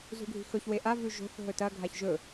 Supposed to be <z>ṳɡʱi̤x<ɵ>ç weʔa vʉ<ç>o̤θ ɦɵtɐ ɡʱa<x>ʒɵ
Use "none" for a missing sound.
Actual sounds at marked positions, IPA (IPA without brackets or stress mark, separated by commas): z, ɵ, ʒ, ç